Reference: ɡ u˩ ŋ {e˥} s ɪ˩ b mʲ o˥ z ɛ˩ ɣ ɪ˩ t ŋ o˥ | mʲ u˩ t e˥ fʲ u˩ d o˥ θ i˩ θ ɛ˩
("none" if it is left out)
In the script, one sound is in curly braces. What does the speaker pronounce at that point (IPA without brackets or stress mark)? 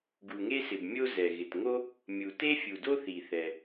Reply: e˥